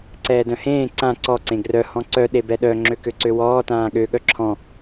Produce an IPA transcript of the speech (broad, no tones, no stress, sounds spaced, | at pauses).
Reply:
ǀ ɛː d œ̃ h ẽː ǀ ã ǀ ɔ ǀ ẽ ɡ r œ h ɔ̃ ǀ œ ɗ e b ɛ ɗ œ ŋ͡ǁ ø k ø ǀ ø w ɔː t ãː ɠ ø ɠ œ ǁʰ ɔ̃